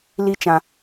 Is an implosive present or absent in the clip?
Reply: absent